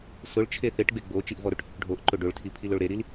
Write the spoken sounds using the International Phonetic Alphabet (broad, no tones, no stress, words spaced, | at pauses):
sʊɭt͡ʃʰe θeʈɡ͡be ɡ͡bo t͡ʃiʔvɔɾʊʈhʊʈ ɖʱoʔǃɵ ɖɵɭtʰi pʰilɵɭɾeɾil